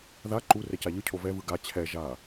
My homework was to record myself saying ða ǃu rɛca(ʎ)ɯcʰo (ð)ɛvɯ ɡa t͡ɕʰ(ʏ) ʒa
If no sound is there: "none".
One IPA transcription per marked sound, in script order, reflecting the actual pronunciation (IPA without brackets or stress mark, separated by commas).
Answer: ʎ, v, ɛ